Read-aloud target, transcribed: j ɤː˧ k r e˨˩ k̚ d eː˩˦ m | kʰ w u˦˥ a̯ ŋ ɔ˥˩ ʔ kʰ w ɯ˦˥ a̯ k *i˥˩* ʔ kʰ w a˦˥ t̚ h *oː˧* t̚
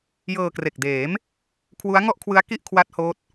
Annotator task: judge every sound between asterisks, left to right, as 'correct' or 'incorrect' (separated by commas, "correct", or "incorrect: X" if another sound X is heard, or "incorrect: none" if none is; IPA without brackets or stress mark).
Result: correct, incorrect: oː˦˥